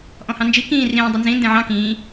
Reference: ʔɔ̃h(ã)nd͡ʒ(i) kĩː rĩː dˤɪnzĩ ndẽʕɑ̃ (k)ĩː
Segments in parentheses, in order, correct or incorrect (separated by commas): incorrect, correct, correct